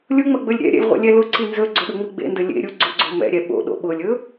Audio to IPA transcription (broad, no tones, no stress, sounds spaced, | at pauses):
lʲ ʊ ŋ͡m ɐ ɡ͡b ɵ lʲ ɾʲ ɛ̰ ɾʲ ɛ̰ lʲ ʁʷ ḛ lʲ ɛ l ʊ ǀ i n z ɵ ɡ͡ǀ ɵ ɗ ʊ ŋ͡m i ɡ͡b ḛ n d ɵ lʲ ḛ ɾʲ u ɡ͡ǀ ʊ ɡ͡ǀ o m ɛ̰ ɾʲ ɛ ɓ o̰ ɗ o̰ ɓ ʊ lʲ ɵ